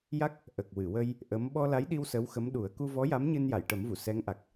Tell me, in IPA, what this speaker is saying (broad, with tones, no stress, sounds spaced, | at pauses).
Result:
j a˦˥ k̚ | ʔ ə˨˩ k̚ w ɨ˨˩˨ w ə˧ j | ʔ ə˧˥ m ɓ ɔ˧ l a˧˥ j ɗ i˧ w s ə˧˥ w x ə˧˥ m ɗ u˨˩˦ ə̯ k u˧ v ɔ˧˥ j a˧˥ m ɲ ɨ˧ n j a˨˩˨ j ʈ ə˨˩˦ m v u˨˩˨ s ɛ˧˥ ŋ ʔ a˨˩ k̚